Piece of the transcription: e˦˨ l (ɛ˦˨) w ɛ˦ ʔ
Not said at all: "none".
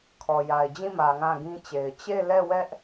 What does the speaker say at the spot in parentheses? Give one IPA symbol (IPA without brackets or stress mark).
ɛ˦˨